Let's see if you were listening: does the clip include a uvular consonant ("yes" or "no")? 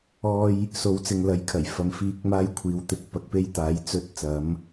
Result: no